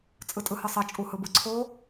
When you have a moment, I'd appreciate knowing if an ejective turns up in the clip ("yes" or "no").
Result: yes